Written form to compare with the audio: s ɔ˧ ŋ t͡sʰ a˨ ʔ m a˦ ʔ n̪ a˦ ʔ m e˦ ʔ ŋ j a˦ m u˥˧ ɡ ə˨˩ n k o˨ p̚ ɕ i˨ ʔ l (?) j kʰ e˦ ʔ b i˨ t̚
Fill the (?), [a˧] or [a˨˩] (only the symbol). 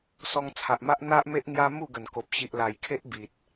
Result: a˨˩